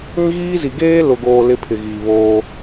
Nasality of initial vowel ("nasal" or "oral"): nasal